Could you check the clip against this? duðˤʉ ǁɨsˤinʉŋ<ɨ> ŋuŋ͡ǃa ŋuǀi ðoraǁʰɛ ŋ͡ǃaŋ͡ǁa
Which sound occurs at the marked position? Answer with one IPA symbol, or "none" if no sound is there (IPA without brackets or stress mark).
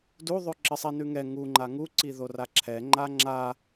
ɛ